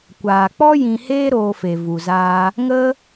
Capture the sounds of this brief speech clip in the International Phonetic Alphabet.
kʷ aː˨ k͡p ɔ˦ j ĩ˧ h eː˦ ɾ oː˧ f e˨ v u˨ z aː˧ | ŋ ə˦

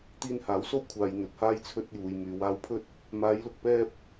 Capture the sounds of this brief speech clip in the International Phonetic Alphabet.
t̪ iː˧ n h aː˨˥ w s o˥ w kʷʰ aː˨ j n̪ ɵ˨ t̚ h aː˥ j t͡sʰ ɵ˧ t̚ j uː˨ j m yː˨ w aː˧ w pʰ ɵ˥ t̚ | m aː˨˧ j l ʊ˨ k̚ p ɛː˥ p̚

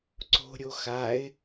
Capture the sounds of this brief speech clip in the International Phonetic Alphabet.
ǀ o̤ ɾʲ o x a ɪ̯

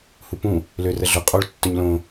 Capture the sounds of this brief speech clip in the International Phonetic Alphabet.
h u p ũ | l ø r ə ɮ ʊ qʼ o ɭ tː ɵ ɲ l õ

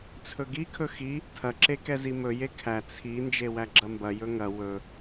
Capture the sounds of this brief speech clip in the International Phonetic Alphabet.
t͡sʰ ɵ ɡ i kʰ ɵ x i | tʰ ɐ ǁ e k ɛ z i m ɵ j e kʰ æ t͡sʰ i n d͡ʒ e w æ ɡ͡ǁ ɐ m b ɐ j ɵ ŋ ɐ w ɵ

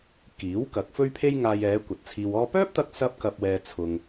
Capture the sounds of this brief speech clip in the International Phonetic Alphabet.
k iː˨˥ w k ɐ˨˥ k̚ f ɵ˥ ɥ pʰ e˥ j ŋ aː˧ j ɛː˨˧ kʷ ɐ˨ t̚ t͡sʰ iː˧ w ɔː˥ p œː˥ p̚ t̪ ɐ˧ k̚ s ɐ˥ p̚ k ɐ˧ p̚ w ɛː˧ t͡sʰ ʊ˧ ŋ

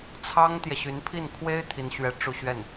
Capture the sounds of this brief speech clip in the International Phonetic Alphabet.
t͡sʰ ɑ˥ ŋ t̪ j ɛ˨ ɕ y˧˥ n pʰ i˥˩ n kʰ w e˥ ɪ̯ t̪ʰ i˥ n ɕ ɥ ɛ˥˧ ʈ͡ʂ u˥˧ ɕ ɥ ɛ˥˩ n

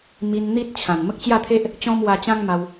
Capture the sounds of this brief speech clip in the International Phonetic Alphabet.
m i˧ n n̪ i˦ t̚ t͡ɕʰ ã˨˩ n m ə˦ k̚ t͡ɕ j a˥˧ t̪ʰ e˦ ʔ | t͡ɕ ɔ̃˦ m w a˧ t͡ɕ ã˦ ŋ m a˧ w

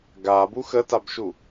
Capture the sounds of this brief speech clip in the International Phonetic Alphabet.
ɡ a b u x ə t a b ʃ u

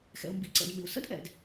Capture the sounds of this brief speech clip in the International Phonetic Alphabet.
x ɛ̰˩ ʊ̯ m b ḭ˩ ǀ ɛ̰˩ d m ɪ˩ ʊ̯ s ə̰˥ d ʔ ɛ̰˩ d

